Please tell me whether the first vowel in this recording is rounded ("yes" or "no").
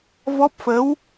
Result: yes